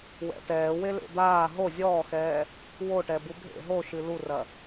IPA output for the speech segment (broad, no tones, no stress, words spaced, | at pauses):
wɛ̰tɛːwelḛ d̪aː ɦo zʲɔːxɛː | woʈɛbu bʱḛ ɦoʃɨ lurɐ